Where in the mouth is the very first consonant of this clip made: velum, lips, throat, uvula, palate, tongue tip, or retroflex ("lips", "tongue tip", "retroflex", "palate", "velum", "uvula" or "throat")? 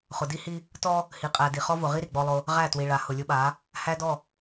uvula